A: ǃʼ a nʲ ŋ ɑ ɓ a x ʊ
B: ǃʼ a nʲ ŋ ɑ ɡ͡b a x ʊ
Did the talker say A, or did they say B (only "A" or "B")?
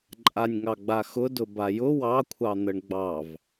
B